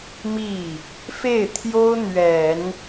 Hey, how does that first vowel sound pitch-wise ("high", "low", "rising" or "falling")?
falling